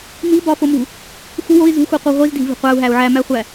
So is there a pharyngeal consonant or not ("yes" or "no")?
yes